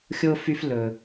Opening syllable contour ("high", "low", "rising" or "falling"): high